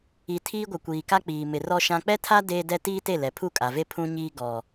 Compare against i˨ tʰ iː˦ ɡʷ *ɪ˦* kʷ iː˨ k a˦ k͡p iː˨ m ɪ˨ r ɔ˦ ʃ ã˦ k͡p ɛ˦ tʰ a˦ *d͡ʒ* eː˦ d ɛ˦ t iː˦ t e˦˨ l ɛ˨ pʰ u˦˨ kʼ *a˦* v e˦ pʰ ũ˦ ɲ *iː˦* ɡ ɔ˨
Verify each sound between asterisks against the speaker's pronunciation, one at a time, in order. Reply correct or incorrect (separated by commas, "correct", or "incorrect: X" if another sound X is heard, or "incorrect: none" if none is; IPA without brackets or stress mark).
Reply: incorrect: ɪ˨, incorrect: d, incorrect: a˨, correct